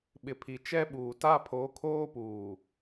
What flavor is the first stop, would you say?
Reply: implosive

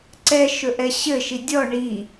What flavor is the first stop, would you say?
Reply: click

